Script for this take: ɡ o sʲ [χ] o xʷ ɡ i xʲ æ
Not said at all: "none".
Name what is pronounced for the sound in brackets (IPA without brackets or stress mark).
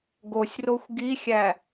r